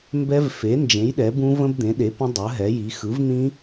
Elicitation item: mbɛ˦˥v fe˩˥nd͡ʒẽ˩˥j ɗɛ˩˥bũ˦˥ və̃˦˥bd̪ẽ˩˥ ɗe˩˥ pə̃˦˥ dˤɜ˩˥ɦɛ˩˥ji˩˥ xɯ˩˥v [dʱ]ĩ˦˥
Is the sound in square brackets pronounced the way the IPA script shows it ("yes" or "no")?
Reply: no